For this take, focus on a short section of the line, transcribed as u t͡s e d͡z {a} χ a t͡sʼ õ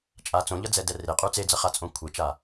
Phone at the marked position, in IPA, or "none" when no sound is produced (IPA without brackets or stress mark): ʌ